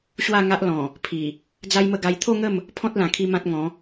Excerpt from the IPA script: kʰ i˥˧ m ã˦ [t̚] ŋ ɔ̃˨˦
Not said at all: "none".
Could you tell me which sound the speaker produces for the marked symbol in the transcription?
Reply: t̚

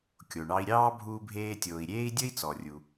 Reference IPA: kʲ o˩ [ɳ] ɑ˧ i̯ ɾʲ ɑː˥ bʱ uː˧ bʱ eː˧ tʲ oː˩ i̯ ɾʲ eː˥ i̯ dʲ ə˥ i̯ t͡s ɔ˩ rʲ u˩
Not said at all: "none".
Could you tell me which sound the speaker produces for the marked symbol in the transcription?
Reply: ɳ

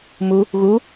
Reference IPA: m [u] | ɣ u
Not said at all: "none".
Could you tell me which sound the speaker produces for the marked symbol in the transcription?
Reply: u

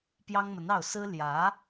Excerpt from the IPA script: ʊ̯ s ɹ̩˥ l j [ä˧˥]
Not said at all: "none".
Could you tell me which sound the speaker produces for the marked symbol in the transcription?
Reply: ä˧˥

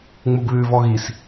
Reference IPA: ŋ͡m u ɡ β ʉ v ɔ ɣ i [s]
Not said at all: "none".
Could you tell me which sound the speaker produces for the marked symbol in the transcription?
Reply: s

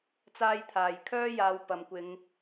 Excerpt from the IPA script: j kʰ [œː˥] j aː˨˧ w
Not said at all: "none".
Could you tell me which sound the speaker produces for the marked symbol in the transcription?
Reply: œː˥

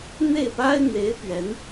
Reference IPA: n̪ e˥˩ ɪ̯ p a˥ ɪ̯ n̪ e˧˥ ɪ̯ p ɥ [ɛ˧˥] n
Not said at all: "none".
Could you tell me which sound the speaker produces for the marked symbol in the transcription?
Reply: ɛ˧˥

